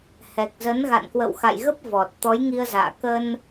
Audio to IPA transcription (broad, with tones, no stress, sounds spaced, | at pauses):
h ɛ˨˩ k̚ z ə˨˦ n ɣ a̰˧˨ n k w ə̰˧˨ w x a̰˧˨ j ɣ ə˦˥ p̚ v ɔ˨˩ t̚ t̪ ɔ˨˦ j ŋ i˧ ə̯ z a̰ː˧˨ k ə˧ n